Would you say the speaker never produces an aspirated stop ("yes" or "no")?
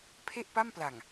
no